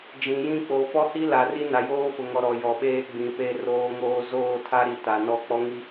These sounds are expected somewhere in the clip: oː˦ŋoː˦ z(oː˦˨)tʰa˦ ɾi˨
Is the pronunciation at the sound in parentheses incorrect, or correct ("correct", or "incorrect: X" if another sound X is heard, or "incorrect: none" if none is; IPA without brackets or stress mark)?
correct